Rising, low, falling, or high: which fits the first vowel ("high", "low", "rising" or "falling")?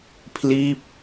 falling